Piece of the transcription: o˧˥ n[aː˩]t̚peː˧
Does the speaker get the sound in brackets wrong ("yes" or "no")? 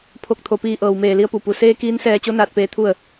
yes